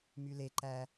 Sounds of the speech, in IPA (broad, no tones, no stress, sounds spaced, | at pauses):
m y l e ǃ æ